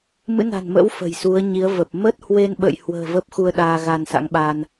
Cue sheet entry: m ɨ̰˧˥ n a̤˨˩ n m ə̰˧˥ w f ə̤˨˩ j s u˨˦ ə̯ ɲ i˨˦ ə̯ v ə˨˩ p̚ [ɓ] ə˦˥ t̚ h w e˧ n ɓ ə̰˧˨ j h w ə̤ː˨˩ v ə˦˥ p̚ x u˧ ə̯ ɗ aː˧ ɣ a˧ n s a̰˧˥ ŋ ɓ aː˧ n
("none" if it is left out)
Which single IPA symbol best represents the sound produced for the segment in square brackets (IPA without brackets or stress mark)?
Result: m